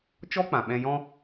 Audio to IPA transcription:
t͡ʃ ɔ˦ k͡p ã˨ ɓ ɛ̃˧ j ɔ̃˦

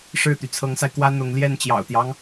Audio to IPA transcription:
ʂ ɻ̩˥˩ t̪ y˩ t͡sʰ ɤ˧˥ ŋ s a˧ ɪ̯ k w ä˥ n̪ ʊ˧˥ ŋ l j ɛ˥˩ n t͡ɕ j ɑ̰˨˩ ʊ̯ t̪ j ɑ˦ ŋ

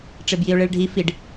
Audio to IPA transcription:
ʈ͡ʂ e b j i ʊ̯ ɭ e ɭ ɖʱ i f i ɖ

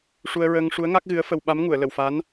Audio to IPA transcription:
ʂ u˧ ə̯ ɹ əː˧ ŋ ʂ u˧˥ ə̯ ŋ a˦˥ k̚ ɣ ɨ˧˥ ə̯ f ə˧ w ɓ a˧˥ m ŋ u˨˩˨ ə̯ l ə˨˩˨ w f a˧˥ n

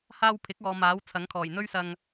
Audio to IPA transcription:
h aː˧ w pʰ ɪ˨˥ k̚ ɔː˨ m aː˨˥ w t͡sʰ ɐ˨˥ ŋ kʰ ɔː˨˩ j n̪ ɵ˥ ɥ s ɐ˧ ŋ

